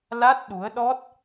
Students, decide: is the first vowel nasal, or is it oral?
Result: oral